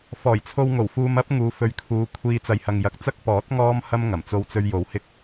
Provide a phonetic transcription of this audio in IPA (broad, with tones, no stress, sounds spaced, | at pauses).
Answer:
f ɔː˨˩ j t͡sʰ o˧ w ŋ o˨˩ w f uː˧ m ɐ˥ p̚ ŋ uː˨˧ f ɵ˨˥ ɥ kʰ uː˨˧ kʷʰ iː˧ t͡s ɐ˨ j h ɐ˨ ŋ j ɐ˨ k̚ t͡s ɐ˥ k̚ p ɔː˨˥ t̚ ŋ ɔː˥ m h ɐ˥ m ŋ ɐ˨˩ m t͡s o˧ w t͡s ɵ˧ ɥ j o˨˥ w h ɪ˥ k̚